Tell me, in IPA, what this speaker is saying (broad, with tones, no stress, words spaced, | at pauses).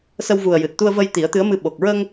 sə˧wvu˨˩ə̯ jɨ˨˩t̚t̪u˧ə̯və˧j t̪i˨˩˦ə̯t̪ɨ˧˥ə̯mɨ˧ ɓo˨˩k̚ ɹə˧ŋ